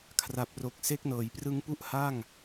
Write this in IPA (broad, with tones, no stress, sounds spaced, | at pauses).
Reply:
kʰ r a˨˩ p̚ r o˨˩ k̚ s e˦˥ k̚ n ɤː˩˦ j p r ɯ˦˥ ŋ p u˥˩ ʔ h a˥˩ ŋ